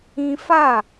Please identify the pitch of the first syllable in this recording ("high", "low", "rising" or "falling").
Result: high